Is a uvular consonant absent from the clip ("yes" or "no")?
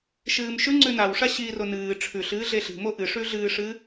yes